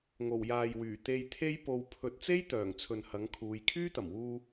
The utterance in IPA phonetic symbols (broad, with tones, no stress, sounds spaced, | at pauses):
ŋ o˨˩ w j aː˨ j w yː˨˩ t̪ e˧ j t̪ʰ e˥ j p o˧ w pʰ ɵ˨˥ t̚ t͡s e˥ j t̪ œː˨˩ ŋ t͡sʰ ɵ˨ n h ɐ˨˥ ŋ kʰ uː˨˧ j kʰ yː˥ t̪ ɐ˨˩ m w uː˧